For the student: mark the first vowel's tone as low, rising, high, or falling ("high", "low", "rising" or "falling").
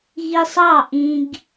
high